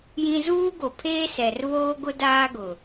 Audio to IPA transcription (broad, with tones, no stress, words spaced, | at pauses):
jĩ˦ zuː˦ɡo˨pʰeː˦ sɛ˨rβoː˦ɡʊ˦ daː˦ɡʊ˨